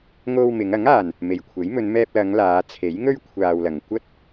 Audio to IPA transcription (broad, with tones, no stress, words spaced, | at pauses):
ŋo˧wmɪ˨˧ŋɐ˨˥ŋaː˨n | me˨jkʷʰe˨˥j mɵ˨˧nmɛː˧p̚lɐ˨˧ŋ laː˨˧ t͡sʰe˨˥jŋɵ˥ɥ kʷʰaː˧wlɐ˨ŋ kʷɐ˥t̚